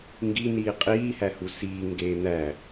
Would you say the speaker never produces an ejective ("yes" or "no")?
no